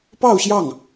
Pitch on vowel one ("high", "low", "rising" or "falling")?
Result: falling